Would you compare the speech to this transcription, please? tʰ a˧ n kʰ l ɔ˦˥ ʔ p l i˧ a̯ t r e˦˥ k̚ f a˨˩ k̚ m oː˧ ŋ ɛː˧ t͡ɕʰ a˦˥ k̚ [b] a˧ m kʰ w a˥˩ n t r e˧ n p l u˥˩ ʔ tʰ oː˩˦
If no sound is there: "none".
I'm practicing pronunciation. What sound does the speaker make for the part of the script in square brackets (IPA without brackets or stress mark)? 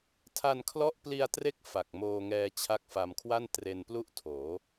f